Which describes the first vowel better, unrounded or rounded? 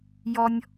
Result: rounded